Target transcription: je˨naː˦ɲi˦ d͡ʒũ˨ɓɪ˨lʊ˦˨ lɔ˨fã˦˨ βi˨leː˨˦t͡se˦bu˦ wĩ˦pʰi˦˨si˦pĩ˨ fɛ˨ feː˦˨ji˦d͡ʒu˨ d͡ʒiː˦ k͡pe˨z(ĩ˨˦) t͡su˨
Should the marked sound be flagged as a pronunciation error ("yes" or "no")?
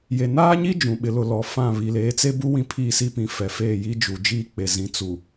no